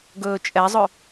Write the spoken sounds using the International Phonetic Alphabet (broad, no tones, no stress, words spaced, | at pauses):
ɡɵːt͡ʃʼɛzˤɵ